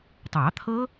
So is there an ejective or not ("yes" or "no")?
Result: no